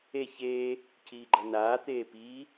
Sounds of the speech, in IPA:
e ç eː | c iː ɡ͡ǃ ʌ n aː t̪ eː p iː

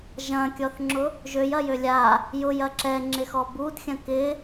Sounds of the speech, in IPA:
ʒ ɐ̃ kʲ ɔ θ ŋ͡ǁ ʊ | ʒ ø j ɐ j ø lʲ a | j ʊ j ɐ ǁ ɛ ŋ͡ǁ ɪ x ɔ b u d xʲ ɐ̃ k ɪ

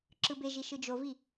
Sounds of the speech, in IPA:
ǁ ɯ b e ʒ i ʃ ɯ d͡ʒ o v i

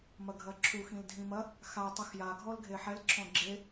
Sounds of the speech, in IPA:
m ɐ ɡʱ ɐ ǁʰ u x ĩ l dʱ ĩ m ɐ | x a tˤ i x j a ɡʱ ɔ l ɡʱ e ħ ɛ l ǁʰ ɔ̃ ɡ͡ǁ e

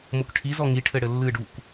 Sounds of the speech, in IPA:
m o k ʈʰ i z ɔ ŋ i ʈʰ ɘ ɽ ɘ lː ɨ ɖ u k

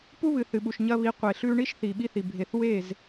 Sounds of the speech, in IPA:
p u˦ β ɨ˨ θ ɨ˨ ɓ u˨ ʃ ɲ ɐ˧ β i˨˦ qʷ e˨ ɬ ʉ˧ ɳ i˦ ʃ θ i˨ ɓ i˧ θ i˨ bʱ e˨ θ w e˦˨ z

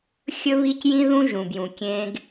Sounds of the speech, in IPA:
xʲ ɵ˦ β i˦ c j ĩ˦ ð ũ˦ ʒ ũ˨ b j ũ˨ kʲ ẽː˧ ɡ

